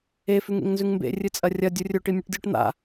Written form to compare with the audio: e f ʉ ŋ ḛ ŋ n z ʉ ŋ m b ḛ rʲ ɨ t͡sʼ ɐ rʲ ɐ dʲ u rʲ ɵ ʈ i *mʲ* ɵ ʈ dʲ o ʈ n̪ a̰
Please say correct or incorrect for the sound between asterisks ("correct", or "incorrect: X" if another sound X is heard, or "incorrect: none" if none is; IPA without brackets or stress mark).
correct